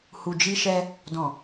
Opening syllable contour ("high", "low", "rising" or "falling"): low